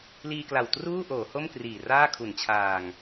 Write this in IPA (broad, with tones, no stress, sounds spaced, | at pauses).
l iː˧ k l a˨˩ w t r uː˥˩ ʔ oː˩˦ h o˥˩ m k r iː˨˩ r aː˥˩ kʰ u˨˩ n t͡ɕʰ aː˨˩ ŋ